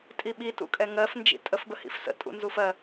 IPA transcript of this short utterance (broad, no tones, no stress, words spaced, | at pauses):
tʼiɓi tṵkʼɛŋɜf nd͡ʒḭtʼəf bəhḭfsə̰ tʼṵnzufɜ